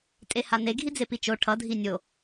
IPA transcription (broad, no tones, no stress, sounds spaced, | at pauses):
tʼ e h a n e ɡʱ i d͡z e p i t͡ʃ o ʈʰ ʌ dʱ i nʲ o